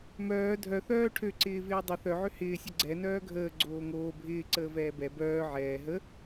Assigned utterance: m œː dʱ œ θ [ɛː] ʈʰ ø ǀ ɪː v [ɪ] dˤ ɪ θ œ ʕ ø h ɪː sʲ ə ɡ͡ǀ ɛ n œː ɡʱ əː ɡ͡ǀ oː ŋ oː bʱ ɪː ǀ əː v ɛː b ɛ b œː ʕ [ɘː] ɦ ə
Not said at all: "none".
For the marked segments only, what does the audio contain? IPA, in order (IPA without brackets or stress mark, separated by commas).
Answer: œː, ɪː, ɛː